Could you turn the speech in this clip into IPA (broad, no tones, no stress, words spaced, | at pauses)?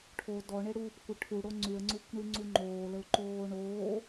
ʈʰo dɔɳeɽuːpkʷə ʈʰuɽo ŋ͡ǀyə̯ŋ͡ǀukʷɳyŋ͡ǀu ŋ͡ǃoːləʊ̯ǃoː ɳoː